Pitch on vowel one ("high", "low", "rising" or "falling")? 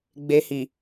low